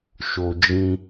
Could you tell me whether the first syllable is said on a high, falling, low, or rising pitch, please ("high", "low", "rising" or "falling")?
low